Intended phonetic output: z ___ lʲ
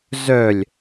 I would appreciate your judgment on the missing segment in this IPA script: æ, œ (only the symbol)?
œ